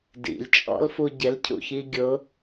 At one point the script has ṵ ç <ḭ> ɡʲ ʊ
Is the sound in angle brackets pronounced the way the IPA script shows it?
no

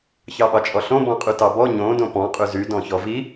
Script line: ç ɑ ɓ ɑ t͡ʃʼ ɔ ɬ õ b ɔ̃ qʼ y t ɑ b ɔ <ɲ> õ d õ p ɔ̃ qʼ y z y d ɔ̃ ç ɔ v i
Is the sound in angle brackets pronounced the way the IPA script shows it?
yes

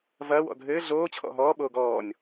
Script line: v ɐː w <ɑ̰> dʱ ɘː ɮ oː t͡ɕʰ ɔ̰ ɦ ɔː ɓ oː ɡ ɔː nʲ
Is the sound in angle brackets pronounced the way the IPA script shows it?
no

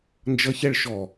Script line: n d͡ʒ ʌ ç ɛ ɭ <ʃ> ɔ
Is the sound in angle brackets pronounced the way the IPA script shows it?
yes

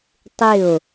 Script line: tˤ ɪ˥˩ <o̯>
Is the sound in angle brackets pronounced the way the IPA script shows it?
yes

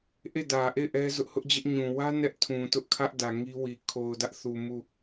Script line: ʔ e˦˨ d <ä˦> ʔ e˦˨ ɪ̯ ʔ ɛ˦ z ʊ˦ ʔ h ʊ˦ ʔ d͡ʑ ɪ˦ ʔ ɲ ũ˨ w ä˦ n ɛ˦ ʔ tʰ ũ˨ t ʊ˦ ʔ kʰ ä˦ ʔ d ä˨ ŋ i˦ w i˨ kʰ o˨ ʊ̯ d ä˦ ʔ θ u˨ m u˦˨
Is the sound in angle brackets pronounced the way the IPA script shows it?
no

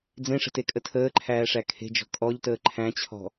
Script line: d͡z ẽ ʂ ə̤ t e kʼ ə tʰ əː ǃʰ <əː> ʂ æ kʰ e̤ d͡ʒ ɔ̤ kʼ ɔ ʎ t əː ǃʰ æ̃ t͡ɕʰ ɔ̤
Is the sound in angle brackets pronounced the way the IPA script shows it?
no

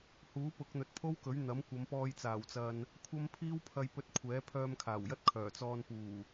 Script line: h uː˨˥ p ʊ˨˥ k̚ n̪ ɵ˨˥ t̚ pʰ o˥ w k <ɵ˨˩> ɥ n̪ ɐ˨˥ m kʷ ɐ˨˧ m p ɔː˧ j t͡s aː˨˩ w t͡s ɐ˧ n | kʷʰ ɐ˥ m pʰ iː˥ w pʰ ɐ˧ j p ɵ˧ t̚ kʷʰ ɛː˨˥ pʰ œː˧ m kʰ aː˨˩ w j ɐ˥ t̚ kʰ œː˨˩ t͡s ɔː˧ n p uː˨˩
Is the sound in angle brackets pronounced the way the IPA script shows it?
no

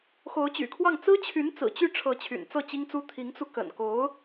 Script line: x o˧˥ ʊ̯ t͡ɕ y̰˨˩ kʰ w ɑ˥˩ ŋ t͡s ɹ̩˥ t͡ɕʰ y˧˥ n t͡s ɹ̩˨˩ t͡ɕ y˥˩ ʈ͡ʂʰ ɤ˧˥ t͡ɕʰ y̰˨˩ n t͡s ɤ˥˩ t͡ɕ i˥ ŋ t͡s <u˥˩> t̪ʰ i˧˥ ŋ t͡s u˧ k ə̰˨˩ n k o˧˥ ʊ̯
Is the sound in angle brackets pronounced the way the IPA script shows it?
no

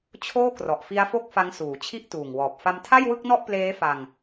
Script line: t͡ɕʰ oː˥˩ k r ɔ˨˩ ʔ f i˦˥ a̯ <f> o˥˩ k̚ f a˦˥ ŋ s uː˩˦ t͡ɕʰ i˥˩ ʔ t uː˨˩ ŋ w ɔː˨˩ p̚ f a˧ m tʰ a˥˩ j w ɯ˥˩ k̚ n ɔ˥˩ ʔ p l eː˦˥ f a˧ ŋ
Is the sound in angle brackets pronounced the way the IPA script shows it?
yes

